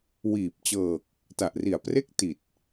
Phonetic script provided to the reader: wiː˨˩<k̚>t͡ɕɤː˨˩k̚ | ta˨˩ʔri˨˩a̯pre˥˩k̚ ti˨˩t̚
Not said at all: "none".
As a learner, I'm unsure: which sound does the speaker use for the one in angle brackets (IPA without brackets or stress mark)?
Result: p̚